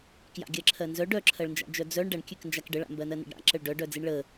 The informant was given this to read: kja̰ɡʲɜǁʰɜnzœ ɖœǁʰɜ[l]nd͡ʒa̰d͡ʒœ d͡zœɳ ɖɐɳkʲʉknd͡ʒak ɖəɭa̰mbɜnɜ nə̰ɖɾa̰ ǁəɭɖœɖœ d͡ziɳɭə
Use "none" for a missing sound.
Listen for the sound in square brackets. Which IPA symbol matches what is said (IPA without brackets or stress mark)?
ɭ